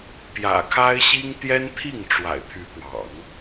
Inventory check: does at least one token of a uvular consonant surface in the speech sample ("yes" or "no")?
no